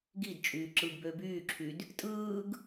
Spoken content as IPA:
ɡ i d t͡ʃʼ yː ǁ ɯ ɡ b ø b yː ǁʰ y d | tʼ ɯː ɡ

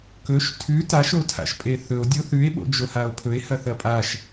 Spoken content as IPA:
k ɵ ʃ tʰ ʉ t a ʃ o tʰ a̰ ʃ pʼ e θ ɵ o̯ dʲ o θ ʉ e̯ ɓ o̰ d͡ʒ o h a o̯ pʰ ɵ e̯ h ɐ θ ɐ pʼ a ʃ

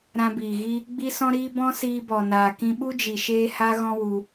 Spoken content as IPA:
ɾ ã˧ b iː˨ ɣ i˦ | ɡ͡b i˦ s ɔ̃˦ ɾ iː˦ b ɔ̃˦ s iː˧ b ɔ˨ n aː˨ k ĩ˧ ɓ u˦ d͡ʒ i˨ ʃ eː˦ h a˦ ɣ ɔ̃˧ w u˧

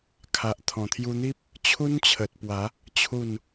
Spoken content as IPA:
kʰ a˨ ʔ t̪ʰ ɔ̃˨˩ t̪ʰ j u˧ n̪ i˦ p̚ | t͡ɕʰ u˦ n t͡ɕʰ ə˨ t̚ p w a˨˦ | t͡ɕʰ u˥˧ n

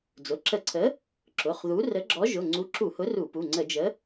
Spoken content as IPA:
d͡z ʊ˩˧˩ ǁ ə˧˩˧ ǀʰ ə˨˥ | ǁ ʊ˩˧˩ χ ð u˨˥ r ə˨˥ ɡ͡ǁ ɔ˨˥ ʒ ʊ˩˧˩ ŋ͡ǀ u˨˥ ǁ u˧˩˧ h ʊ˨˥ r u˧˩˧ p u˩˧˩ ŋ͡ǀ ə˧˩˧ d͡ʒ ə˨˥

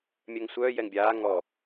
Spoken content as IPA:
mʲ œ ŋ sʷ œː j ɛ ŋ bʲ aː ŋ ɔ

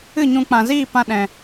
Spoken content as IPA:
ɨ˦˨ ɲ ũ˧ k͡p ã˨ z iː˦˨ p ã˦ ɗ ɛ̃˧

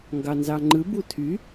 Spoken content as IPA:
ŋ ɡ ɑ n z ɑ ŋ͡ǃ ɯ b u tʰ y

